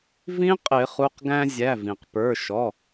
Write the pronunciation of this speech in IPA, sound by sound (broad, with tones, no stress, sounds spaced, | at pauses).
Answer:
v ĩ˦˥ qʼ ɪ˨˩˦ χ u˩˧˩ q ɡ æ̃˧ zʲ æ˩˧˩ v ĩ˩ q p ə˞˩˧˩ ʃ ɔ˩˧˩